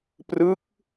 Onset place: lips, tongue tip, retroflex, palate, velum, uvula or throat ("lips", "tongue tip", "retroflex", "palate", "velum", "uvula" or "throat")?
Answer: lips